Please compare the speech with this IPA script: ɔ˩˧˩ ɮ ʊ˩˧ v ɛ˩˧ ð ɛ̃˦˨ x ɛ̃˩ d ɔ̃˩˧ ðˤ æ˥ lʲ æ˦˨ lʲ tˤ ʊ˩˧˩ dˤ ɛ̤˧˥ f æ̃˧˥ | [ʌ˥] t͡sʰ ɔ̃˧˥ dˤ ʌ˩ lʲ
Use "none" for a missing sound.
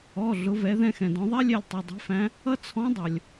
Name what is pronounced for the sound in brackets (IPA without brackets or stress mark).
ʌ˥